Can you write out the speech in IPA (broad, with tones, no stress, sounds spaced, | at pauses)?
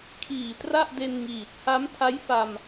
kʰ iː˨˩ t r a˥˩ ʔ d e˧ n ŋ iː˨˩ t̚ h a˦˥ m tʰ a˦˥ j f a˧ m